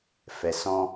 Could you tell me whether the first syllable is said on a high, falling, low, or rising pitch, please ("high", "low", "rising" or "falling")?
low